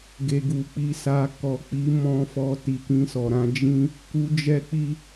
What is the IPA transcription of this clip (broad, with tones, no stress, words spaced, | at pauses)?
ɡe˨ɡu˨ k͡pi˨sa˨ kɔ˨k͡pi˨˦ mɔ̃˧ fɔ˧ ti˨kĩ˧sɔ˨ɾã˧ d͡ʒĩ˦ | ku˧d͡ʒɛ˦k͡pi˦